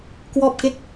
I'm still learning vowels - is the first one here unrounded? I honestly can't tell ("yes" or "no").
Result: no